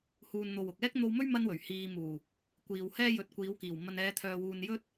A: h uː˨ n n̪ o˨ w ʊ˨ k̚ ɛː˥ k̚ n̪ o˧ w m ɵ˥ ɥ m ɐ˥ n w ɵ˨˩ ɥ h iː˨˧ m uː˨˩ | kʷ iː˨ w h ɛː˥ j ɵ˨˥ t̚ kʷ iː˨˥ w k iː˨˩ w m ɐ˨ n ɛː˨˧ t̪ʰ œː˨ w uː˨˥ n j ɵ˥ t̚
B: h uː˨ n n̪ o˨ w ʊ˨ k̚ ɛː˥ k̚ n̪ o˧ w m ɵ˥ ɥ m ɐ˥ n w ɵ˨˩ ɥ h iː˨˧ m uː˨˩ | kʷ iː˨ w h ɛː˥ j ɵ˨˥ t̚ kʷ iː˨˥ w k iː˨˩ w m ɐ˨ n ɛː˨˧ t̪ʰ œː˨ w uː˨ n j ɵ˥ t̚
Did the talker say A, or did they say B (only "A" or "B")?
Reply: B